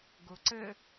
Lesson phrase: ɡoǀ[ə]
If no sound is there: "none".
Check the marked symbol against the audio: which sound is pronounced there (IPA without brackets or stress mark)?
ə